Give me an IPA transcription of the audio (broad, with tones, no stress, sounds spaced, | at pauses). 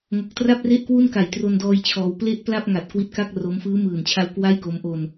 ŋ o˨˩ k̚ t r a˥˩ p̚ r e˥˩ ʔ k w u˥˩ n k a˨˩ j t r o˧ n d ɔː˧ j t͡ɕʰ ɔː˧ w p l e˥˩ ʔ p l a˥˩ p̚ ŋ a˨˩ t̚ k w i˦˥ t̚ k a˥˩ k̚ r o˦˥ m f ɯː˦˥ m ɯː˨˩ n t͡ɕʰ a˧ w k w a˥˩ j k o˦˥ m ʔ o˧ n